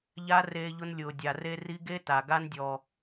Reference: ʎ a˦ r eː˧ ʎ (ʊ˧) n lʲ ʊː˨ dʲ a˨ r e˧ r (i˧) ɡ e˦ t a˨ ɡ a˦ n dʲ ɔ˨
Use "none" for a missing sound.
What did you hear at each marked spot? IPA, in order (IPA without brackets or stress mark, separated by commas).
ʊ˧, i˧